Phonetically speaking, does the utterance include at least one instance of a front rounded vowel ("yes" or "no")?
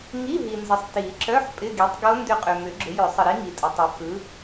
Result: yes